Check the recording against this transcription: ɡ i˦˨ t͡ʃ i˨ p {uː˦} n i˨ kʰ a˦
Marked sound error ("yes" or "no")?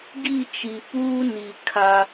no